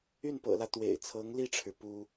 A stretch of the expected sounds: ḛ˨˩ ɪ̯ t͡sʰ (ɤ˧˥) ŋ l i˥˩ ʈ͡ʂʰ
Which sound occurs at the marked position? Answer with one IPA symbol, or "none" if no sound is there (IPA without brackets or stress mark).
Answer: ɤ˧˥